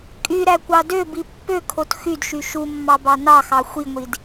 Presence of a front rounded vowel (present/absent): present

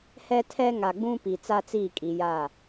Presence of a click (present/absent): absent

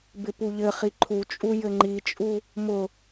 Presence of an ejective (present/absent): present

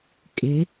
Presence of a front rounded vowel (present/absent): absent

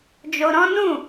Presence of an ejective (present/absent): absent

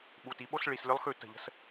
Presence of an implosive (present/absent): present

